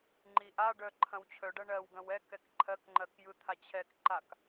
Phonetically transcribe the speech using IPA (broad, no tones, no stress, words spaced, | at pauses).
ŋ͡ǃiʔaɖœ ǃʰɐ̃wt͡ɕʰœɖɐ ɳɜwɡɐ̃w ɛ kɛkǃʰɜkŋ͡ǃɜk jɯt̪ʰat͡ɕʰɛkǃak